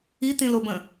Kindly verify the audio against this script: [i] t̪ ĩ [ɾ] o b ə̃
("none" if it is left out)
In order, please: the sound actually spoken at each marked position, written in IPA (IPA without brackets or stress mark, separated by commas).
i, l